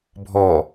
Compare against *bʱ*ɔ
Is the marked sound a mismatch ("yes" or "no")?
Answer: no